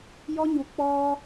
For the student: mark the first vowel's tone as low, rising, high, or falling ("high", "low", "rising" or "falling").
high